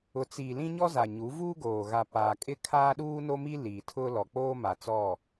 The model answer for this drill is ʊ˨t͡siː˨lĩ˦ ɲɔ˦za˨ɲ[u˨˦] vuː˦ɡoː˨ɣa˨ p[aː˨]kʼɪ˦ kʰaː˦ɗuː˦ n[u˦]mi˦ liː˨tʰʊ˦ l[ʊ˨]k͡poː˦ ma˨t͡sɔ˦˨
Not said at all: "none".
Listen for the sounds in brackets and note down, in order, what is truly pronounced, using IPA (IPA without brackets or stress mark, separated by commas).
u˨˦, aː˨, o˦, ɔ˨